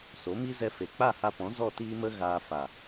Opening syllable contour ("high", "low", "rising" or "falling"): rising